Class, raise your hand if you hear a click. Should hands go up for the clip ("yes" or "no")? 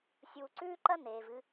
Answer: yes